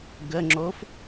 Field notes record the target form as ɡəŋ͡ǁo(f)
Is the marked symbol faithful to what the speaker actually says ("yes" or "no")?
yes